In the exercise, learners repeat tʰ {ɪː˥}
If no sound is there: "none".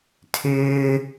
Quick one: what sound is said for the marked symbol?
ɪː˥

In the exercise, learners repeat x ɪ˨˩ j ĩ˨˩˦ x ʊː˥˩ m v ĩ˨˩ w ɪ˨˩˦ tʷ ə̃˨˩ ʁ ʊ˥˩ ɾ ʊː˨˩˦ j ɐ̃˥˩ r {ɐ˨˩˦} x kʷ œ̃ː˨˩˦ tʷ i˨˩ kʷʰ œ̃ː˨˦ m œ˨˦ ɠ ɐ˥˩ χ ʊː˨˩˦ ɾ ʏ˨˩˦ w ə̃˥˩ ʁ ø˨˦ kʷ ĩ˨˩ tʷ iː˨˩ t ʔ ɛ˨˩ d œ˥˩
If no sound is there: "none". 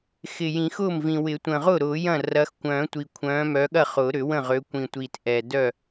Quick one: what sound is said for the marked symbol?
ɐ˨˦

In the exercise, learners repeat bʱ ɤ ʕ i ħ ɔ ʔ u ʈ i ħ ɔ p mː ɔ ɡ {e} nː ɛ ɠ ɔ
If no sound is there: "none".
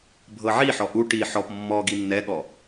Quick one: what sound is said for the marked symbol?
i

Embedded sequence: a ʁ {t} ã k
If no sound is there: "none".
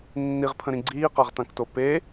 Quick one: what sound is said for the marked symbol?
t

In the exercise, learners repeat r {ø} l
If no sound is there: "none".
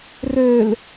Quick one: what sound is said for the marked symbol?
ø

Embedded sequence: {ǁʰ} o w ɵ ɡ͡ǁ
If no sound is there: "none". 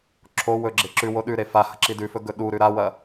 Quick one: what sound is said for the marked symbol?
ǁʰ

